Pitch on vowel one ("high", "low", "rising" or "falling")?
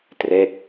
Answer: falling